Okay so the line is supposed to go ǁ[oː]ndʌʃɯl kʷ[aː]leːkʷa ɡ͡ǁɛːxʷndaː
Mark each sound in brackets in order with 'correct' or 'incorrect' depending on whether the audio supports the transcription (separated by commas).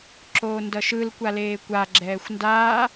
correct, incorrect